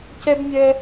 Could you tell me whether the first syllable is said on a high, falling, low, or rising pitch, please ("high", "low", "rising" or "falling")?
high